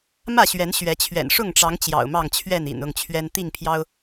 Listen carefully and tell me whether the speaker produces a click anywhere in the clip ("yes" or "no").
no